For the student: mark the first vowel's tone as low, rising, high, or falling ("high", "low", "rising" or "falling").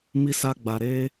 high